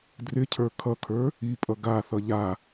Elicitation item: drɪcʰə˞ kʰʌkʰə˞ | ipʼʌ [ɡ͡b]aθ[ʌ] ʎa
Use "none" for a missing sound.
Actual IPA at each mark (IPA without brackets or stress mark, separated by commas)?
ɡ, ʌ